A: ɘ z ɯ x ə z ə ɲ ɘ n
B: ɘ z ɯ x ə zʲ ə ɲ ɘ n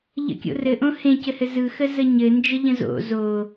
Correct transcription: A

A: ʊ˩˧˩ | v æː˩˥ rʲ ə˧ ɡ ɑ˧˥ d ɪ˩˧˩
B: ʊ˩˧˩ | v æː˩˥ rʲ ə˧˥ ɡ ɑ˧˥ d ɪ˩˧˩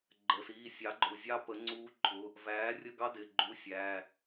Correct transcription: A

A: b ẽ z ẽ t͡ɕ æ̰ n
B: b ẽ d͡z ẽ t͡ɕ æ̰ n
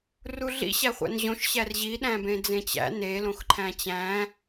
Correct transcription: B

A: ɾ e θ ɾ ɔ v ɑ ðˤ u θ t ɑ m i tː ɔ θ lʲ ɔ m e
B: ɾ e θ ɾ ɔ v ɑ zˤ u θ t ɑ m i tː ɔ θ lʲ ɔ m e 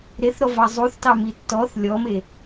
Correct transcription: B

